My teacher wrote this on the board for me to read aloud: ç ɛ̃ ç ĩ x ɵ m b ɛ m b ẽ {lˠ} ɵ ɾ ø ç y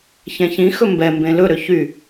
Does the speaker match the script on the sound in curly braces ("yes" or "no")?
no